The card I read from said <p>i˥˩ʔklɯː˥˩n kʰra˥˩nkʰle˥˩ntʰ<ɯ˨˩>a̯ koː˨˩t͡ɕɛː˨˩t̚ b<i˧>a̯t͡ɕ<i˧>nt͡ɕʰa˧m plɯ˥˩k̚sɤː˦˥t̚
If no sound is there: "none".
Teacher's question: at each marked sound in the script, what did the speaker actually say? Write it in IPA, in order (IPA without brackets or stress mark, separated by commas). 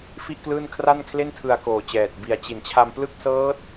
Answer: f, ɯ˧, i˨˩, i˨˩